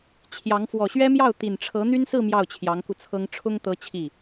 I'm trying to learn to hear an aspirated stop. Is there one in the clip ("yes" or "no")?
yes